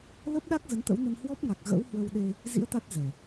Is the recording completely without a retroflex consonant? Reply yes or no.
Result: yes